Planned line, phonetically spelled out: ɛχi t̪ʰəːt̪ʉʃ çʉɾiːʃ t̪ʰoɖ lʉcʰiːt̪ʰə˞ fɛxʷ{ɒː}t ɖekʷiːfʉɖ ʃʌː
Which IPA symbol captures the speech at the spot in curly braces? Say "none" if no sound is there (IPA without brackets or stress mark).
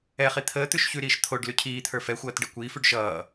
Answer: ʌː